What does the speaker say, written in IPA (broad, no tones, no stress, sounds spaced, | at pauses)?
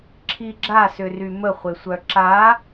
ǁʰ i ɡ͡ǁ a s ʏ r y m ə χʷ e sʷ œ ǁ a